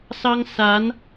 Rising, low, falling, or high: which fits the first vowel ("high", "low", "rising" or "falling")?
high